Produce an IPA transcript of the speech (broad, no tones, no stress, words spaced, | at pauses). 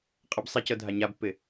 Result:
qʼɤbsˤicɤ dʱaɲabpːɪ